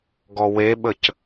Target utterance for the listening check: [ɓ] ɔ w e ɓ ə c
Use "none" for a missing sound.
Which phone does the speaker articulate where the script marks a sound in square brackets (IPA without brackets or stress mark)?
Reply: ɡ